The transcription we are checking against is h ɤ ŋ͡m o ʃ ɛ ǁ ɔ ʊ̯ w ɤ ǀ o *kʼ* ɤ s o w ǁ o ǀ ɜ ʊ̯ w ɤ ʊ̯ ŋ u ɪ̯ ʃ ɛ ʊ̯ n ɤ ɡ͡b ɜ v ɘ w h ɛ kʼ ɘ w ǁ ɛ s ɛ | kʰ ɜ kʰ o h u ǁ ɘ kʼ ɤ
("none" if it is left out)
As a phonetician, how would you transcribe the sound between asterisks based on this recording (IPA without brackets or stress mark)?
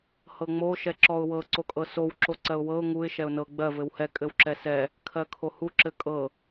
kʼ